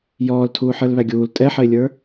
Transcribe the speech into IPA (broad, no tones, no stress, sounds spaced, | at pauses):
j ɔː l tʰ uː ħ ə˞ l β æ ɡʲ uː l tʼ ɛ ħ ə ɪ̯ lʲ ə˞